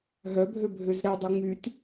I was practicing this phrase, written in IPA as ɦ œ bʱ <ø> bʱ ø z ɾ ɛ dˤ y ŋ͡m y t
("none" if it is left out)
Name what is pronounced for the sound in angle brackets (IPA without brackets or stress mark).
ø